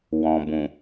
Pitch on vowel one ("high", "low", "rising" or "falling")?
low